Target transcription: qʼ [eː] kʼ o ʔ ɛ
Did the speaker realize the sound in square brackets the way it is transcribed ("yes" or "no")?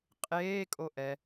yes